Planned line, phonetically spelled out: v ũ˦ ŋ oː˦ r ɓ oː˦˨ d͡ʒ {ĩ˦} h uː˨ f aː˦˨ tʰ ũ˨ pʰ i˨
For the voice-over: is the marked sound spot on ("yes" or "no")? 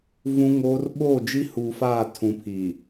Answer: no